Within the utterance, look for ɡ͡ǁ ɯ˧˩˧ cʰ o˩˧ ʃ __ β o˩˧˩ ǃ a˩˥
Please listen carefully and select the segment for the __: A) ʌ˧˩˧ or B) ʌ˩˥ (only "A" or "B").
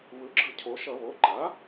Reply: A